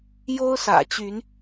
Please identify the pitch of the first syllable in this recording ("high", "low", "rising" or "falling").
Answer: high